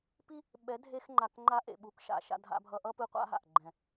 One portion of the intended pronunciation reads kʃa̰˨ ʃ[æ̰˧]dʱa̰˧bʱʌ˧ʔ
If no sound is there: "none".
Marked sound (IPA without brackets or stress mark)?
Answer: a̰˧